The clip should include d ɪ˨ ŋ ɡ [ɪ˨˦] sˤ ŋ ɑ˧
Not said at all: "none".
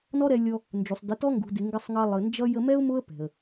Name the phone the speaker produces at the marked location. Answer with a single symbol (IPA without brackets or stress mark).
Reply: ɪ˧